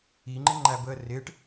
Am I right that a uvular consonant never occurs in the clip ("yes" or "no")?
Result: yes